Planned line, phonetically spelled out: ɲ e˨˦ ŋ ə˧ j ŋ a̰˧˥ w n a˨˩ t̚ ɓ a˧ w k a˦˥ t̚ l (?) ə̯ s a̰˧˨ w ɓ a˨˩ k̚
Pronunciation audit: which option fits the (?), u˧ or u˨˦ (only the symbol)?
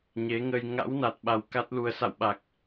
u˧